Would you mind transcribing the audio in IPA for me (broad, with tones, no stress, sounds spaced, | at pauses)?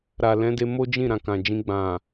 ɾ a˨ l ɛ̃˨˦ d e˧ m o˦ d͡ʒ ĩ˦˨ ɾ ã˨ k ã˨ d͡ʒ ĩ˧ ɡ͡b ã˨